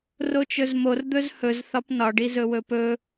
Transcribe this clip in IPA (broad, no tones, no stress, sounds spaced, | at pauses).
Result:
r o t͡ʃ ɵ z m o r d̪ ɵ z h ɵ z θ ɒ p n ɒ ɖ i z ɵ w ɵ p ɵ